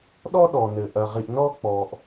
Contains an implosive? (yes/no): yes